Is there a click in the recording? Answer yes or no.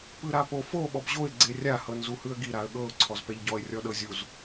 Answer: yes